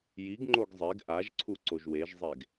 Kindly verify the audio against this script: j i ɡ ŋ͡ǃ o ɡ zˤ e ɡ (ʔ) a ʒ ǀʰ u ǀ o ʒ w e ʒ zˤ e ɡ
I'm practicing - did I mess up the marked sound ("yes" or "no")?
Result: no